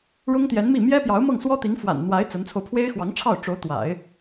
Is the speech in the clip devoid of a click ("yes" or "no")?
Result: yes